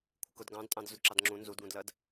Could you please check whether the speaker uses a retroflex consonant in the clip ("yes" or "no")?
no